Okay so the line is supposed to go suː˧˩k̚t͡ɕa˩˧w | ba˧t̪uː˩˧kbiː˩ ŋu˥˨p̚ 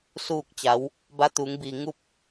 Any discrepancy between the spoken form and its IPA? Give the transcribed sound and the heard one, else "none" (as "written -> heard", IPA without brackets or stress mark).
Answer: k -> ŋ